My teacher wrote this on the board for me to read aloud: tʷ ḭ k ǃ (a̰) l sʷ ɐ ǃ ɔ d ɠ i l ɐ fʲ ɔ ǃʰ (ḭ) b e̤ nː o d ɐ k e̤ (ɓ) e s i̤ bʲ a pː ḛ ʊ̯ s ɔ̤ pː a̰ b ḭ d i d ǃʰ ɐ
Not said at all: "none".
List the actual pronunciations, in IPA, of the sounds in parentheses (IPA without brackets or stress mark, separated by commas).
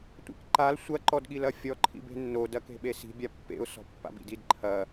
a, ḭ, ɓ